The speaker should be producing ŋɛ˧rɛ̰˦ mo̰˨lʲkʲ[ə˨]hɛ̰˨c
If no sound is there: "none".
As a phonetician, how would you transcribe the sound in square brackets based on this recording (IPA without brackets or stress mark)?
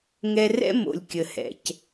ə˨